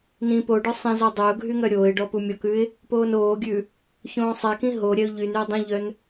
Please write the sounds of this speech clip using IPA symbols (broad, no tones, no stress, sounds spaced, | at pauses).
n ĩ p o ɖ œ sˤ ĩ z ɔ dˤ œ ʊ̯ ɡʱ y ŋ œ ɾʲ oː ɪ̯ ɖ ɔ p u mʲ ɔ k ʉ ɪ̯ | p oː n oː ɡʲ ʉ | ç õː sˤ ɛ k ĩ ɦ o ɾʲ ɛ ʊ̯ ʎ y n y ʊ̯ dˤ ĩ ʎ œ n